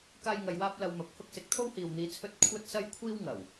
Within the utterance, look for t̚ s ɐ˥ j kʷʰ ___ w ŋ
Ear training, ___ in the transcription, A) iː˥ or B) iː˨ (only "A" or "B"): A